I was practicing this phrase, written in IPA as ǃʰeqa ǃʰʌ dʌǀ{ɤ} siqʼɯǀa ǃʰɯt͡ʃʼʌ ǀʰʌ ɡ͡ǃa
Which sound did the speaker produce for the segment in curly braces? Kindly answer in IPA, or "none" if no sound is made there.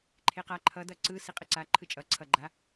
ɯ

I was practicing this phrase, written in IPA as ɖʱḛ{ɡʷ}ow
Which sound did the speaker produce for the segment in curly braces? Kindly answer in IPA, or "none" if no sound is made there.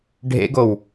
ɡ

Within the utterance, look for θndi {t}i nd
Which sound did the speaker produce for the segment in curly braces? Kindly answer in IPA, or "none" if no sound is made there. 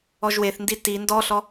t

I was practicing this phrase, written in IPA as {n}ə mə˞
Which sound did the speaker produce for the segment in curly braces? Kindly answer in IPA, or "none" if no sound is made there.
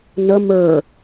n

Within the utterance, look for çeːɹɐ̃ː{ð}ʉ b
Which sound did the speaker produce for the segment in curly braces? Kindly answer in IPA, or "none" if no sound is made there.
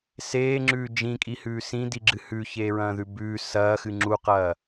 ð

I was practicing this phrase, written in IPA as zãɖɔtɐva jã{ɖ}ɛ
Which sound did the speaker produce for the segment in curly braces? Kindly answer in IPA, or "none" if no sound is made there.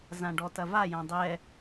dˤ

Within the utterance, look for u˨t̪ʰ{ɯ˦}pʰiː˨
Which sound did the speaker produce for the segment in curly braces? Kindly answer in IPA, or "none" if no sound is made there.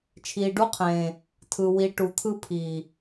ɯ˦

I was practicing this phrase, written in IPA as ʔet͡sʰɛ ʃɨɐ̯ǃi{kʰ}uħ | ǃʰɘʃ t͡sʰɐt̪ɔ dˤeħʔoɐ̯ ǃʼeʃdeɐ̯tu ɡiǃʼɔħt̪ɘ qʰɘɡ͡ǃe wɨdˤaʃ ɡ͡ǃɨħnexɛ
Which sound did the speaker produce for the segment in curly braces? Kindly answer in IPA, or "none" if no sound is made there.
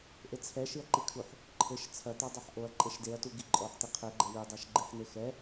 kʰ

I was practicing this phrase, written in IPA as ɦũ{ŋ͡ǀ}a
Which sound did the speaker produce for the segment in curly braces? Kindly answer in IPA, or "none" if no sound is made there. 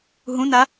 n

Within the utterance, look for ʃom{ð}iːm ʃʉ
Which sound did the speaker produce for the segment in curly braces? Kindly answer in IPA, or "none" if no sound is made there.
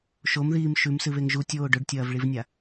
ð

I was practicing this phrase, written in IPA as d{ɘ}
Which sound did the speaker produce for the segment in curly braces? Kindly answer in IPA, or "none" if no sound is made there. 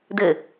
ɘ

